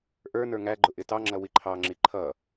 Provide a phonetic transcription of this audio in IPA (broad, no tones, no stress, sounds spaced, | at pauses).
ʔ ə˞ n ə˞ ŋ æ ɡ͡ǃ ʊ ʔ ɪ t ɑ ŋ͡ǁ ʌ w i ǃʰ ɑ ŋ͡ǁ i ǃʰ ʌ